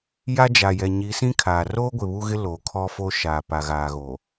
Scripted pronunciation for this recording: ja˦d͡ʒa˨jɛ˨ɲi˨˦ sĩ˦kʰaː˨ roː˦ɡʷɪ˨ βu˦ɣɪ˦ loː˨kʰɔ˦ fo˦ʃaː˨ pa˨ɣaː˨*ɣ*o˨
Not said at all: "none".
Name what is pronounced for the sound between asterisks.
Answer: ɣ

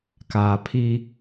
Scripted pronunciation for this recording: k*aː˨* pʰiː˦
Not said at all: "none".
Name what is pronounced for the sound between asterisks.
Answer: aː˨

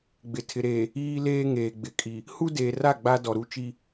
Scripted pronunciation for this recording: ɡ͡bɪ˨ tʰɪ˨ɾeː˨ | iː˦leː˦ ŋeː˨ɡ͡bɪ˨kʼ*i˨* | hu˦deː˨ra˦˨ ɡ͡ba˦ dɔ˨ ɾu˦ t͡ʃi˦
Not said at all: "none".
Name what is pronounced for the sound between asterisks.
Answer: i˨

